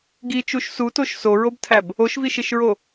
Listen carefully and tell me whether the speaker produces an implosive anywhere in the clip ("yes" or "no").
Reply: no